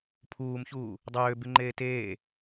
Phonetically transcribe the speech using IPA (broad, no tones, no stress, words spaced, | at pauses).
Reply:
pʰuːmçuː | dˤøːbyŋ͡ǃeː teː